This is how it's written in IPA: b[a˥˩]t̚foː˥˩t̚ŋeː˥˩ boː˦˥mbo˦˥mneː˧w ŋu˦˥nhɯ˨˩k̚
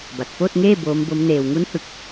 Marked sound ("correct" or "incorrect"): incorrect